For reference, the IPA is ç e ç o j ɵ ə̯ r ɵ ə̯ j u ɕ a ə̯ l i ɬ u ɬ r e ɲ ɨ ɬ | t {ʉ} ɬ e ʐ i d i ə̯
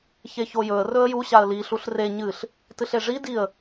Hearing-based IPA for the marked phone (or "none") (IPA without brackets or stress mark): ɨ